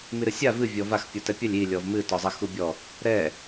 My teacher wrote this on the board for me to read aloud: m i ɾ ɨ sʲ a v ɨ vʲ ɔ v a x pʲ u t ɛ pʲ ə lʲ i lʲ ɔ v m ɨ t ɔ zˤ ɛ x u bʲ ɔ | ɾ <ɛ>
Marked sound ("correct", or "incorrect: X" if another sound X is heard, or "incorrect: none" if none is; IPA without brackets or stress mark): correct